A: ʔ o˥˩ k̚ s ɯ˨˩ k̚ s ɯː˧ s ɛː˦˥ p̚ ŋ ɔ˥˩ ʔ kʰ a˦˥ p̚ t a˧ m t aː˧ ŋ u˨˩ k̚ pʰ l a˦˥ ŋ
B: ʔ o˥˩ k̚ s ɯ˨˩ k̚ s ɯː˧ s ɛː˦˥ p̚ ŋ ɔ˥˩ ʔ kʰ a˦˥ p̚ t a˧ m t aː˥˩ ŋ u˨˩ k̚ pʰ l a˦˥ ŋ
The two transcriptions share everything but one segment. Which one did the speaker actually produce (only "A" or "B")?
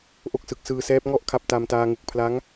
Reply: A